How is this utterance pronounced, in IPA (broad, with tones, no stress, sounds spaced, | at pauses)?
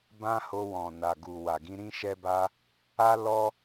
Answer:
b ã˦ h o˧ w ɔ̃˨ n a˨ ɡ u˨ w a˨ ɡ ĩ˧ ɾ ĩ˦ ʃ ɛ˦ b a˦ | a˦ l ɔ˦